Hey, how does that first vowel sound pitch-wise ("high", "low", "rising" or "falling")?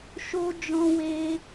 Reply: high